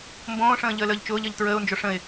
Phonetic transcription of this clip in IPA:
mbõːʂə̃ː ʎəːləːʎt͡ʃʊːʎəːʎ tɹəːʊ̯nd͡ʒo ʂə̃ɪ̯

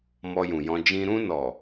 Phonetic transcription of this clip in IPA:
mɔ˧jũ˨jɔ̃˧ d͡ʒĩ˧ ɾũ˧nɔ˨

